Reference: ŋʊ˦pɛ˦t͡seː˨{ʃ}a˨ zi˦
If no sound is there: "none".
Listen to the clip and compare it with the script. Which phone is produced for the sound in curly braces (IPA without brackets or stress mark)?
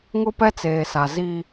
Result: s